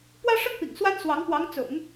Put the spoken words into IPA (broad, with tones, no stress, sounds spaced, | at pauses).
p w ä˥ ʂ ə˥ n p ḭ˨˩ ŋ s w a˥ n s w ɑ˧˥ ŋ p w ɑ˧˥ ŋ t͡s ʊ̰˨˩˦ ŋ